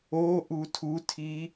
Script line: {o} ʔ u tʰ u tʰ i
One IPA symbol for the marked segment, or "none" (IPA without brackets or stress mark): o